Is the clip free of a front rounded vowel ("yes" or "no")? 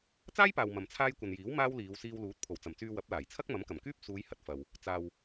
no